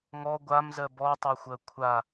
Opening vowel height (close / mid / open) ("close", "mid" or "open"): mid